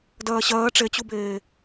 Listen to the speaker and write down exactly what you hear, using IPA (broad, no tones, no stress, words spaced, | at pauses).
dɜːɕɜː ʈ͡ʂet͡ɕubeː